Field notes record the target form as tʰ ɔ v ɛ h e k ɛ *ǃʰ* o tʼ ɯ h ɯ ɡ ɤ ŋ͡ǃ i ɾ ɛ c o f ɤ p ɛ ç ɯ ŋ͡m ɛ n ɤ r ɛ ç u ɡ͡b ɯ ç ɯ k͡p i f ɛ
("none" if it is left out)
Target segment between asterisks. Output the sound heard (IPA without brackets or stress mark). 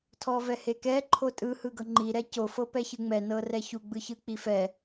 ǃʰ